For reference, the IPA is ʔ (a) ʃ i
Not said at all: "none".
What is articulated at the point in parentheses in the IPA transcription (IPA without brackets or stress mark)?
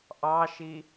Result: ɑ